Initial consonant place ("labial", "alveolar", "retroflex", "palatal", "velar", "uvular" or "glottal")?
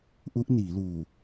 glottal